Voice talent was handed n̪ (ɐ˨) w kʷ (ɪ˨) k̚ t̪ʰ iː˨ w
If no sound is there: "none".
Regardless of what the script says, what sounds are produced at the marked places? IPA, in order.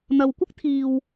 ɐ˨, ɪ˥

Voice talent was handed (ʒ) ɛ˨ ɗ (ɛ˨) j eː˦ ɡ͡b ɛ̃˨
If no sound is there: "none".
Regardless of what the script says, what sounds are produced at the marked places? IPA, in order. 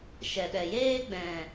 ʃ, ɛ˨

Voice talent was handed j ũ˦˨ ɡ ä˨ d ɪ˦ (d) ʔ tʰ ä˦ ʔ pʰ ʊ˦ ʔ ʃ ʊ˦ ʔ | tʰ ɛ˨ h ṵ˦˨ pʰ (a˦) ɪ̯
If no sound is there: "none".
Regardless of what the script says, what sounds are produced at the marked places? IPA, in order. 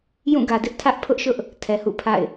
none, a̰˦˨

